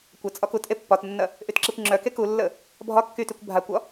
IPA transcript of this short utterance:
kʷət͡sʼɒ kutʔe pːɒtnːɐ | ʔytǁekʷŋ͡ǁœke kulːə | bʱɒ kːytykʷ bʱakʷɒ

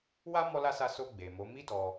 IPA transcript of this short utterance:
wa˦ mɔ˦la˦sa˦˨ so˧ ɡ͡be˨mo˨˦ mi˦dɔ˧

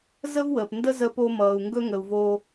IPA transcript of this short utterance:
zə˥vwəː˩pndə˥ zə˧po˧ mʌː˩u̯ŋɡɵ˥ŋə˩u̯ vo˧

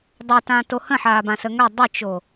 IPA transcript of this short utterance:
dˤɛtãto hə̃ħaːbãsə ŋœ dˤət͡ʃo

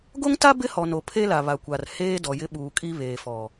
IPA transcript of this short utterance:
ɡo˦ŋta˦ bɪ˦hɔ˨no˨ pʰe˦la˨βa˨kʷa˨r heː˦ dɔ˨jɪ˦ɓuː˨ kʼi˦βeː˨fɔ˨

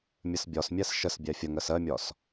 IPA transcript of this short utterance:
mʲəsbʲɒsmʲæs ʃəsbʲæ fʲəŋɜs ɜmʲɒs

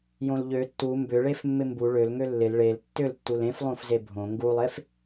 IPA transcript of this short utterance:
jõlʎø tːu mbʏɭef mːɪmbu ɭølŋø lːɪl ɭel tːʏltːul ẽf lˠõfzebʱõ ŋɡulˠef

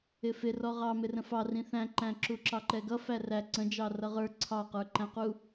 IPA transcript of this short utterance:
ɪfɪ rɔʁɑ mɪrə̃fɑ rĩθæ̃ǃæ̃ǁu ǁɑǃɛɡʌ færæ ǀə̃d͡ʒɑ rʌʁə˞ ǀʰɑqə˞ǃæ̃qu

